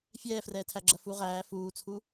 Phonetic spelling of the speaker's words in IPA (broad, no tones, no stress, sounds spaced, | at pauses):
fʲ ɛː f r ɛː tʰ æ ɡ͡ǁ ɐ f u ʁ æː f uː t͡sʰ u